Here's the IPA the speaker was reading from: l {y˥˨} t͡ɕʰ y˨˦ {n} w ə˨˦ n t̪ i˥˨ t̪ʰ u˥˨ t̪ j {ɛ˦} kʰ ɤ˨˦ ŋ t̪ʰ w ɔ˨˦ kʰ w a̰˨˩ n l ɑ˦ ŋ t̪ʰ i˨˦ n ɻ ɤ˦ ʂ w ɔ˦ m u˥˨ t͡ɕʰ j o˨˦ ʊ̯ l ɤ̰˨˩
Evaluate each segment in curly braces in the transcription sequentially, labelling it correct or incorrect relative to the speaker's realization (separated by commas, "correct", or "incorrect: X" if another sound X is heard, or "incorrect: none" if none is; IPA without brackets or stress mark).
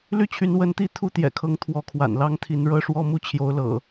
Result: correct, correct, incorrect: ɛ̰˨˩